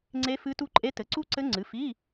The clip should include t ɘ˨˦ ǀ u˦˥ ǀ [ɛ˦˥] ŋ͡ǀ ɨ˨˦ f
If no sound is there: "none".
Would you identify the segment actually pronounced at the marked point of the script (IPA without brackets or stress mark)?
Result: ɘ˦˥